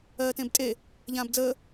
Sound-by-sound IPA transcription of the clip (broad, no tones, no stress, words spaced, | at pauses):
ɜːtẽbtʼe | ʎãːbd͡zəː